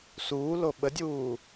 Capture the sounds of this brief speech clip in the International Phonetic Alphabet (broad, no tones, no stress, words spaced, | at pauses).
suːlo ɓədʲuː